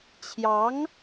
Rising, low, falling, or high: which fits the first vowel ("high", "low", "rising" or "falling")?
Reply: rising